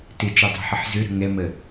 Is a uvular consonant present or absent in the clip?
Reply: absent